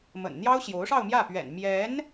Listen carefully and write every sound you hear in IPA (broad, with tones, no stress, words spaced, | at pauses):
mə̰˨˩nn̪jɑ˥ʊ̯ ɕjo˧˥ʊ̯ʂɑ˥˧ʊ̯mjä˥˩pɥɛ̰˨˩n mjɛ˧˥n